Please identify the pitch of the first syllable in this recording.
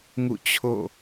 falling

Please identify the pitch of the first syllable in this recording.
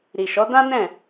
low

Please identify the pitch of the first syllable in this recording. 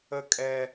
high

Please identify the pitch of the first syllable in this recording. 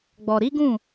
low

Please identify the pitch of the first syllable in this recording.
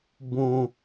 low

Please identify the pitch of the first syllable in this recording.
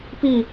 falling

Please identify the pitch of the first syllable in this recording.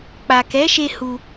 low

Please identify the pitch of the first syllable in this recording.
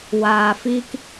low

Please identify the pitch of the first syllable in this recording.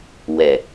low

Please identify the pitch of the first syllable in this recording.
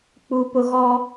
high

